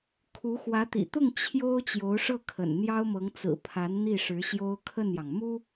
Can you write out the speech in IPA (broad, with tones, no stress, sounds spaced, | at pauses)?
kʰ u˧˥ x w ä˧˥ t̪ ḭ˨˩ t̪ ʊ˥˩ ŋ t͡ɕʰ j o˥ ʊ̯ t͡ɕ j o˧˥ ʊ̯ ʂ ɤ˥˩ kʰ ə̰˨˩ n n̪ j ɑ˥ ʊ̯ m ɤ˧˥ ŋ t͡s ɹ̩˨˩ pʰ a˧˥ n n̪ i˥˩ ʂ ɻ̩˧˥ ɕ j o˥ ʊ̯ kʰ ə˥˩ n j ɑ˩ ŋ m u˥